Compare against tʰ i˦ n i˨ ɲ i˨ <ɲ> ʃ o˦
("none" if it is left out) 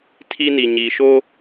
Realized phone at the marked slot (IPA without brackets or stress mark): none